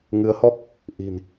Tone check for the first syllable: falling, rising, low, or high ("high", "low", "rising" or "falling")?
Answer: rising